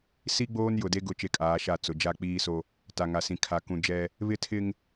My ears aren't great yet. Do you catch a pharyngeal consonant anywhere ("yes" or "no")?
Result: no